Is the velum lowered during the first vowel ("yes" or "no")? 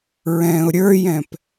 yes